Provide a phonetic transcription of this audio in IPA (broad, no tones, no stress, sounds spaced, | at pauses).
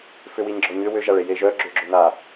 f ʏ w i ɲ ɡ͡ǁ ɔ ɲ ʏ w ʏ ʒ a ɭ e j e ʒ œ ɡ͡ǁ ʏ ɡ͡ǁ ʏ n a